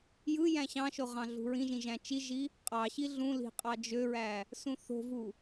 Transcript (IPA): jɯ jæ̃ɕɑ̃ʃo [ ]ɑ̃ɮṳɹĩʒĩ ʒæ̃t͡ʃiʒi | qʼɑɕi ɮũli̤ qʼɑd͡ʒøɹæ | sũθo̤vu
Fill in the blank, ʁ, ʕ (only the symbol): ʁ